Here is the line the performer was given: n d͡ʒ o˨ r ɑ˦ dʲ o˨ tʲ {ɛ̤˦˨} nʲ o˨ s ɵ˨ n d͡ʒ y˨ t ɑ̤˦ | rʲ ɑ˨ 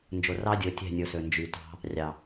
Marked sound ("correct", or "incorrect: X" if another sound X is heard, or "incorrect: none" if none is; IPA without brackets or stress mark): correct